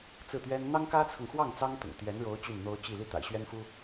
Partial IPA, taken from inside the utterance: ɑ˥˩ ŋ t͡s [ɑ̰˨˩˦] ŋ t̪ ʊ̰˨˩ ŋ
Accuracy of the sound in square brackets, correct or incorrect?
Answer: incorrect